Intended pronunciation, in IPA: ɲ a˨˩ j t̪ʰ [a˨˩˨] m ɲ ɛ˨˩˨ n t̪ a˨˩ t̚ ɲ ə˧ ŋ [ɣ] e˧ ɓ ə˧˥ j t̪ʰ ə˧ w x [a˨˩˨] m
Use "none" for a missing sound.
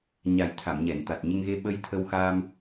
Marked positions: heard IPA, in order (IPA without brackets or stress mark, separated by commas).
a˨˩˨, ɣ, a˧